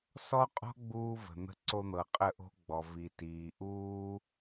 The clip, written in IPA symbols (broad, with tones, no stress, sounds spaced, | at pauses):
s ɔ˥ qʼ ɔ̤˥ ɡ͡b uː˧ v ə̤˩ n̪ ə̤˧ ǀ o˧ n̪ ɤ˩ qʼ ə˧ ʔ o̤˧ ɡ͡b ɔ˩ v i˩ t iː˩ ʔ uː˥